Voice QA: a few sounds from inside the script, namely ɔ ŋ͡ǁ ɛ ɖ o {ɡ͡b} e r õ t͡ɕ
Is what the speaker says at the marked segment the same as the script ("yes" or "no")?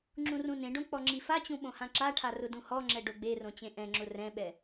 yes